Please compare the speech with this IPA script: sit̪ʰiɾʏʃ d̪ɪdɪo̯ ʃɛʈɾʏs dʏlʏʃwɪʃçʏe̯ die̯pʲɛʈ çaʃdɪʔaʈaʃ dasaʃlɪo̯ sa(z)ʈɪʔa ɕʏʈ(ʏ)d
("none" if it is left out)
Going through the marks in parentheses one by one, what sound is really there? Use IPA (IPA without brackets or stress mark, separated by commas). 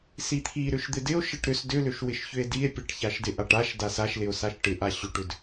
ʃ, ʏ